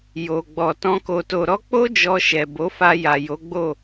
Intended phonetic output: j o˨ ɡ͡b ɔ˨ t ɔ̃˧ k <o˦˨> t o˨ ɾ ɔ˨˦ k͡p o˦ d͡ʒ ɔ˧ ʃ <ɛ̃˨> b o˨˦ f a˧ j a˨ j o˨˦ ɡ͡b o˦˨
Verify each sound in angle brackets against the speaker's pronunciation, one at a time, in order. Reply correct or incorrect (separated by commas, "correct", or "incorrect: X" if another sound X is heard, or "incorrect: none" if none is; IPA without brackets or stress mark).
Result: incorrect: o˨, incorrect: ɛ˨